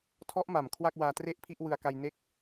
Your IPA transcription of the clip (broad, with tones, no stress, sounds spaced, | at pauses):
tʰ ɔ˦˥ ʔ m a˨˩ m kʰ w a˥˩ k̚ w aː˧ t r e˥˩ ʔ pʰ i˥˩ ʔ w ɯ˧ a̯ k a˧ j n e˥˩ k̚